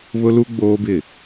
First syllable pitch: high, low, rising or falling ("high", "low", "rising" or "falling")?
high